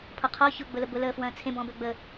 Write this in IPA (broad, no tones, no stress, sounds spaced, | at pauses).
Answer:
pʰ ɔ qʰ ɔ ç ʊ ɡ͡b ʊ l ə b ʊ l əː f w ɐ̃ː t͡sʰ ẽ b ɔ̃ b ø ɡ͡b əː